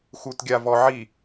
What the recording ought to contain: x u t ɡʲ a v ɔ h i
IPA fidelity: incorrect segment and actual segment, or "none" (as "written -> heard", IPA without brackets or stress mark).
h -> ʕ